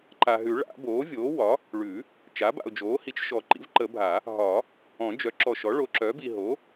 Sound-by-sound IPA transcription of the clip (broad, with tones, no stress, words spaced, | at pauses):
ǃa˨ɦʉ˨˩˦ɭa̰˨˩˦ boː˩˥vʲoː˩˥wɒ˩˥ | ɭʉ˨˩˦ | t͡ʃa˩˥ba̰˨ʊ̯d͡ʒoː˩˥hi˩˥t͡ʃ ʃɔ˨ ǃḭ˩˥vǃə˨˩˦ bʱa˨˩˦ | ɦɒ˨˩˦ | ɔ̃˨˩˦d͡ʒœ˩˥ǁɔ˨ʃɔ˩˥ ɭo˩˥ǁœ˩˥bi˨ ɦo˩˥